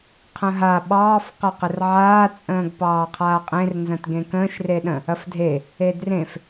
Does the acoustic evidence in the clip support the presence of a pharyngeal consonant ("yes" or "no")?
yes